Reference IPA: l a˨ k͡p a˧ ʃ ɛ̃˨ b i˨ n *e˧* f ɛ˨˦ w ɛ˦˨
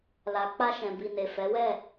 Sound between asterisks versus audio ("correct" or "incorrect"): incorrect